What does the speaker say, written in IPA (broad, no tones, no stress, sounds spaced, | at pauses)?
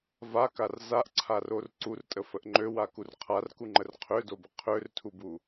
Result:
v a k a r z a ʔ ǀʰ a r o r ǀ u r tʼ ə f ə ʔ ŋ͡ǃ ø w a k u r qʰ a r k u ŋ͡ǃ ə r qʰ ø d o b ə qʰ ø r tʰ u b u